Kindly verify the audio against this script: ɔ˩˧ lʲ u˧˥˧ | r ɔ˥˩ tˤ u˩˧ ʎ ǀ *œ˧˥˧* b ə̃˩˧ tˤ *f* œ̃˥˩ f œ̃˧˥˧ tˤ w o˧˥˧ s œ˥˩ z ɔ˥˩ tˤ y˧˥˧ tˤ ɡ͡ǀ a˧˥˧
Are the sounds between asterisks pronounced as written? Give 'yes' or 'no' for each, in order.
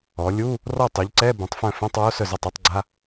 no, yes

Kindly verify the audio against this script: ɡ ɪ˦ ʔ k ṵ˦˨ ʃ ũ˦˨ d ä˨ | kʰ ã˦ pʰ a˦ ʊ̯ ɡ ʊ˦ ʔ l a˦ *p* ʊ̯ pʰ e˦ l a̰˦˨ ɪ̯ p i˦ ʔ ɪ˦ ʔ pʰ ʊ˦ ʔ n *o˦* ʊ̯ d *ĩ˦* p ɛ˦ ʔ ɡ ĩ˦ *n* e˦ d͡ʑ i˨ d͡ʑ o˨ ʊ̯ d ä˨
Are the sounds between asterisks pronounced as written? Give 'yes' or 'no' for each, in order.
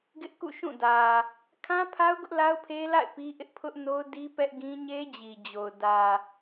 no, yes, no, no

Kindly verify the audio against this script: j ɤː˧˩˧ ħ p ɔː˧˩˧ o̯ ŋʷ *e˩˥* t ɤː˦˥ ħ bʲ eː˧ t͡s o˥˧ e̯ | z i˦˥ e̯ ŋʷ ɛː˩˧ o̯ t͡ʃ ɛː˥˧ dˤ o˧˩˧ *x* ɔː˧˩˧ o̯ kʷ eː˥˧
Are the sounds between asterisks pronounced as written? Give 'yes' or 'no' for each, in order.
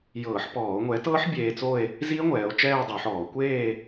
no, no

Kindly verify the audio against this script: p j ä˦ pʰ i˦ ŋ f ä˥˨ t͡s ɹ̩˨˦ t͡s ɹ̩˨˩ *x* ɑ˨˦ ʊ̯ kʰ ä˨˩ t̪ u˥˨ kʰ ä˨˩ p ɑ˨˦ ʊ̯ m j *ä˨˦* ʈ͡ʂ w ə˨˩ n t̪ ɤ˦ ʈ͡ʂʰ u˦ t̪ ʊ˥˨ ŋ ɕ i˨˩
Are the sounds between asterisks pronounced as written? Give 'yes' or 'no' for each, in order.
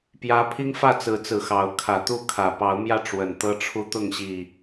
yes, no

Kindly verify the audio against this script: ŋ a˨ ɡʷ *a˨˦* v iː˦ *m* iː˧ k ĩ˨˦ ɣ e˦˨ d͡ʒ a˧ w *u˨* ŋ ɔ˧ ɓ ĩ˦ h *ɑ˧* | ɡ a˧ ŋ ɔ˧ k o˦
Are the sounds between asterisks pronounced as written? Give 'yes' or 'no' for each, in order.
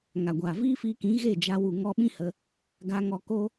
no, no, yes, no

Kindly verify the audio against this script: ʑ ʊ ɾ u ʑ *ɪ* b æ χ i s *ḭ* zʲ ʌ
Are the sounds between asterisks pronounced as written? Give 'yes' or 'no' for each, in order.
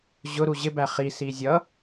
yes, no

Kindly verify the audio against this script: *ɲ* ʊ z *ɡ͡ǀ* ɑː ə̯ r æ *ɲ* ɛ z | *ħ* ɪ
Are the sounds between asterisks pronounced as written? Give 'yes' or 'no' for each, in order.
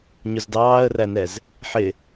yes, no, no, yes

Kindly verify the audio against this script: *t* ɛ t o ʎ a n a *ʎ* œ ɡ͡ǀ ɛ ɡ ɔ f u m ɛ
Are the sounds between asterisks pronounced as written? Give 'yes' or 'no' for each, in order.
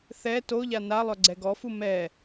no, no

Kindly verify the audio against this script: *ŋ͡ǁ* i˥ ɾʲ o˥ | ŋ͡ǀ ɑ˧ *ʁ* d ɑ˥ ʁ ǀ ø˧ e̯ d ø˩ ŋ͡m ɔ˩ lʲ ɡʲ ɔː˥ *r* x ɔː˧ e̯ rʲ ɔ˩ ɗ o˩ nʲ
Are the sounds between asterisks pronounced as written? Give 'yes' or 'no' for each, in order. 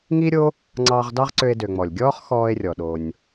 no, yes, no

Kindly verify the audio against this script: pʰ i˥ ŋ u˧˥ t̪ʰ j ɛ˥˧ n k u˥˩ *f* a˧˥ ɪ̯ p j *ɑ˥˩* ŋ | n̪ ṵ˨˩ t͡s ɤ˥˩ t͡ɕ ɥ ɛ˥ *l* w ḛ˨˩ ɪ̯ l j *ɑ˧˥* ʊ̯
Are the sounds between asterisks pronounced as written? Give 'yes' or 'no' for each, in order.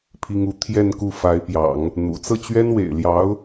yes, no, no, yes

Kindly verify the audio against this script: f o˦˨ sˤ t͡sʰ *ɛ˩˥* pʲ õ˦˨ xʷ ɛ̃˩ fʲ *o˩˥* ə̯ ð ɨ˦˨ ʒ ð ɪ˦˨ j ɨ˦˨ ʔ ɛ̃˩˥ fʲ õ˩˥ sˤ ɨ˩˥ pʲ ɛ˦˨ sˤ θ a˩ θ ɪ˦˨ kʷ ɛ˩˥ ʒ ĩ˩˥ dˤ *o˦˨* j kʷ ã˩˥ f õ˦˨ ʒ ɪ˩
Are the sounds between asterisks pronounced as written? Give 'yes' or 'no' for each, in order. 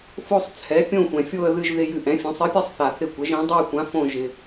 yes, no, yes

